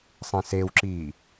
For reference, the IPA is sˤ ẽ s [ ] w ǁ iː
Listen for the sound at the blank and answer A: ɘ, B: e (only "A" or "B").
B